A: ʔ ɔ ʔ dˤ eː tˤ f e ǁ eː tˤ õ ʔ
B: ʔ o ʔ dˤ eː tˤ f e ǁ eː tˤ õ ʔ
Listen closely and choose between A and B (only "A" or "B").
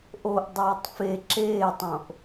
B